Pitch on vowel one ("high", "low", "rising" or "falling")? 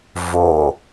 low